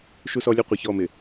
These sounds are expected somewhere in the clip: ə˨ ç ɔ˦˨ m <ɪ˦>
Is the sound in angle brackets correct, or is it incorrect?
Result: incorrect